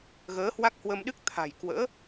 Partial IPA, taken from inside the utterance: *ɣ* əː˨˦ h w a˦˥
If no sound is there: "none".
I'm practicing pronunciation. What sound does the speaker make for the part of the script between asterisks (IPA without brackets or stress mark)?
ɣ